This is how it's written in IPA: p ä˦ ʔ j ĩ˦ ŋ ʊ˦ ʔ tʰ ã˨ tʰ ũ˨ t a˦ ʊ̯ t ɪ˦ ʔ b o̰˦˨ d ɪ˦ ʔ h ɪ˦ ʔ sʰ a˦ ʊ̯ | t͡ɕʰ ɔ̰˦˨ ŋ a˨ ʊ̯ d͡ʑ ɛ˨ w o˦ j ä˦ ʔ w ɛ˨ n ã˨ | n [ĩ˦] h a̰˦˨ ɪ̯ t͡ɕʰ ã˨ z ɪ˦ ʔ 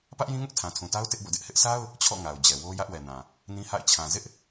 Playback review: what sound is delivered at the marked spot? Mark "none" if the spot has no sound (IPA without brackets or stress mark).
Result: ĩ˦